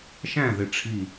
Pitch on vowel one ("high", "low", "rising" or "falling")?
falling